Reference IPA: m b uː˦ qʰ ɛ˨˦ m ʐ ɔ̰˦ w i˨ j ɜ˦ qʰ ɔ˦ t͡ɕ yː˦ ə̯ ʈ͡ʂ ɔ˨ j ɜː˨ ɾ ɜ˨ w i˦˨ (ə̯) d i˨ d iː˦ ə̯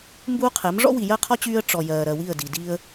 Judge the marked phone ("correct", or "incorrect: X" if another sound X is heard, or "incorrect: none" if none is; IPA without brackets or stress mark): correct